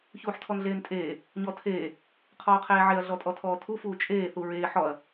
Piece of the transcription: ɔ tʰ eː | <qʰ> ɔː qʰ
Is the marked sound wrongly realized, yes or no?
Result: no